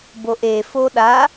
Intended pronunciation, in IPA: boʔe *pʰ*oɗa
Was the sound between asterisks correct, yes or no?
no